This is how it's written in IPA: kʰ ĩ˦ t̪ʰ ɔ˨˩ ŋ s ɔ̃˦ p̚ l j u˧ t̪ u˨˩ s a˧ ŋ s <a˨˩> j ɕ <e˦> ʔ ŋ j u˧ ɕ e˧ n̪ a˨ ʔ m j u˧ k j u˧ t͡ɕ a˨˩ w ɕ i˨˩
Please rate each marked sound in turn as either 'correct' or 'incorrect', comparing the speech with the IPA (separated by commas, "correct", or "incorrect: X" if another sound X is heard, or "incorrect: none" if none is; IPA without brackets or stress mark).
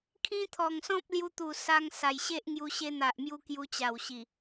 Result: correct, correct